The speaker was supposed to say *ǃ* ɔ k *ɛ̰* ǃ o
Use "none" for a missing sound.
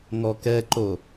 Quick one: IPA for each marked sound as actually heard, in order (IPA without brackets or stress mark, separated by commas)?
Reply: ŋ, ɛ